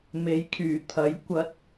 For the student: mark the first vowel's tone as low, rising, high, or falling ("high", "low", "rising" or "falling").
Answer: rising